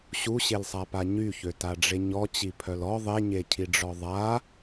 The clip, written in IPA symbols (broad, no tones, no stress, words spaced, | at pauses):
ɕuɕelsˤapa ɲyçøtaɖ͡ʐe ɲɔt͡ɕipʰœl ɔ ðˤeɲecʰiɖ͡ʐɔ ðˤa